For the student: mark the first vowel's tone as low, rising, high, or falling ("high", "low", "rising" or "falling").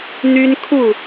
high